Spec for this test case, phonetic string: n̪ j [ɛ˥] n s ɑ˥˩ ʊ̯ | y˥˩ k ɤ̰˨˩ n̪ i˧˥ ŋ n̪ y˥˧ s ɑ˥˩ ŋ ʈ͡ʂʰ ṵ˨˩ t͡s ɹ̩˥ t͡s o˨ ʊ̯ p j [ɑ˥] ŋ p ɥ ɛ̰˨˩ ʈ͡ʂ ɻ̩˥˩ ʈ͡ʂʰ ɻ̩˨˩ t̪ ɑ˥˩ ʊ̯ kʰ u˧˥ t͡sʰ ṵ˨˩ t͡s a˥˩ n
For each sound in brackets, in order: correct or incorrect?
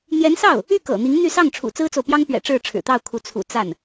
incorrect: ɛ˧˥, correct

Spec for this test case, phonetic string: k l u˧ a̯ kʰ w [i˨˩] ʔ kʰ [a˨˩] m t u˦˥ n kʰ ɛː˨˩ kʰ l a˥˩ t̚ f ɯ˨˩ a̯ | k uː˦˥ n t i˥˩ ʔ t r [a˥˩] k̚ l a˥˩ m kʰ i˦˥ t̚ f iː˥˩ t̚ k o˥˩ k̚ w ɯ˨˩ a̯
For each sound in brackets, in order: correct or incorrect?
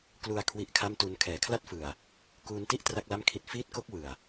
incorrect: i˦˥, incorrect: a˥˩, correct

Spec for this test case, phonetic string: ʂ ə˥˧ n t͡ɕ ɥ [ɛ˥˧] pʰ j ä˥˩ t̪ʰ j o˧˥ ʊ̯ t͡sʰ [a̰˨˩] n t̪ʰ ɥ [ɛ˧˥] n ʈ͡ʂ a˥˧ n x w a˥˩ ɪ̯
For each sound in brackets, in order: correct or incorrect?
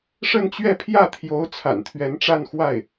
correct, correct, correct

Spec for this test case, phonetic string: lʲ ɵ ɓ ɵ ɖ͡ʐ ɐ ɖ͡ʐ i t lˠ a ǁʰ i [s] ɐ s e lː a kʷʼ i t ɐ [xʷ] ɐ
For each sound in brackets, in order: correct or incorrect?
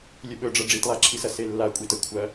correct, incorrect: kʷʰ

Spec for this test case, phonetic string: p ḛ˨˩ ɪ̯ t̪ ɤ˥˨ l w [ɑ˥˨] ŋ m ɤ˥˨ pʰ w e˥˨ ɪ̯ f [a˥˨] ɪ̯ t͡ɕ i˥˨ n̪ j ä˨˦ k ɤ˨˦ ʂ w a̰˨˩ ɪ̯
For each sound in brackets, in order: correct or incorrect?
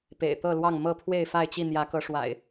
correct, correct

